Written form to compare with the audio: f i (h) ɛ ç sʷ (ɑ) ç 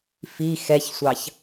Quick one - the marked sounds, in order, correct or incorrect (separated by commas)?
incorrect, correct